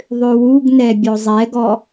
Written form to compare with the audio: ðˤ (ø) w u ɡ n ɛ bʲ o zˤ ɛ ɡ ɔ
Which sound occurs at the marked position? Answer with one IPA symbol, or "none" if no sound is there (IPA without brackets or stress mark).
ø